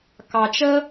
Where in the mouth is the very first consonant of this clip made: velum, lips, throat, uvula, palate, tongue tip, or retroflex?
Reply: velum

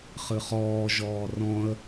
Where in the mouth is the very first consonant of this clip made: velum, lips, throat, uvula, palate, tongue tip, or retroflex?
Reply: uvula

